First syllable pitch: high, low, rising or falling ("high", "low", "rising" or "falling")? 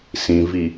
low